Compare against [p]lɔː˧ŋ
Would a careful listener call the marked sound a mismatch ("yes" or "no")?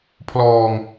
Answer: yes